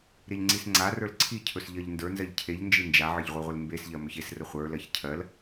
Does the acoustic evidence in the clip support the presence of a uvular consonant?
yes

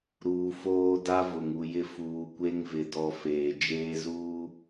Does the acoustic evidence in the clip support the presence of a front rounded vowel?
no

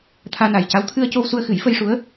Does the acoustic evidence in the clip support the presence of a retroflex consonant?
yes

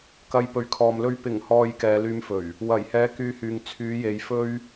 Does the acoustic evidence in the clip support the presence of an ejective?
no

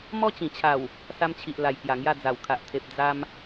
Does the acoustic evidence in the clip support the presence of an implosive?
no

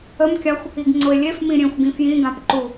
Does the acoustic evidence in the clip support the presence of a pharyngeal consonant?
no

